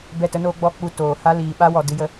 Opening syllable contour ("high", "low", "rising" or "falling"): falling